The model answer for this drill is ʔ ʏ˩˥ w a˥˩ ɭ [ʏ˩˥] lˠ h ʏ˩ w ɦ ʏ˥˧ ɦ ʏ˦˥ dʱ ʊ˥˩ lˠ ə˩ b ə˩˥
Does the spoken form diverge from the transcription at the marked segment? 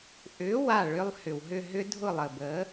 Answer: yes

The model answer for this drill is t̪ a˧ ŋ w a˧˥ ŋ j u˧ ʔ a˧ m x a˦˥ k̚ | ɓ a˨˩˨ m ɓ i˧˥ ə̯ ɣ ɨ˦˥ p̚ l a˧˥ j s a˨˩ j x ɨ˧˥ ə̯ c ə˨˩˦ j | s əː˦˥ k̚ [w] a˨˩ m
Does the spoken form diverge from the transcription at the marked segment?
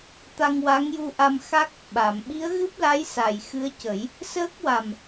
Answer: no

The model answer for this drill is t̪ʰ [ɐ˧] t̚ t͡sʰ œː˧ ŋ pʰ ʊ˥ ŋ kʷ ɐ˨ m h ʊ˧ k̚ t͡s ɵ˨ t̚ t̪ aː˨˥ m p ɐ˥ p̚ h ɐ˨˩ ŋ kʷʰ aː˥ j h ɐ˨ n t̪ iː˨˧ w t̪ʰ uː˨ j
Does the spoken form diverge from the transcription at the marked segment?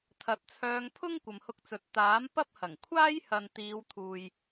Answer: yes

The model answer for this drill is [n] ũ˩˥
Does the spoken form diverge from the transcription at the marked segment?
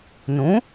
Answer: no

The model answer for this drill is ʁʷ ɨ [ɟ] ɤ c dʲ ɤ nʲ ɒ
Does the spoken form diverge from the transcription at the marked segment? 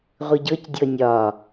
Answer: no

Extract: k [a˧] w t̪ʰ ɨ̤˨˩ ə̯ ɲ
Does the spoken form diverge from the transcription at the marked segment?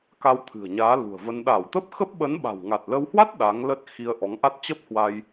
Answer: no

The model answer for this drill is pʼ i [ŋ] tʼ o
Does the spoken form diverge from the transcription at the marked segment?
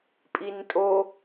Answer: yes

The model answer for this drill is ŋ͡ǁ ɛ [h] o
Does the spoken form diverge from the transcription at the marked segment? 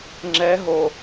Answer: yes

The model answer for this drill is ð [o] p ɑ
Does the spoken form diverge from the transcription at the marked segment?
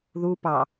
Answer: yes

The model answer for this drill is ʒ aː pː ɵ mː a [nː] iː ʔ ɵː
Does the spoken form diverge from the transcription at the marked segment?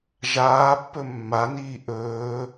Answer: yes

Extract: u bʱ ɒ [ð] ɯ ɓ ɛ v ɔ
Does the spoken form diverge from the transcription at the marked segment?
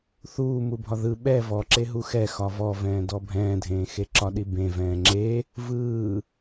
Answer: no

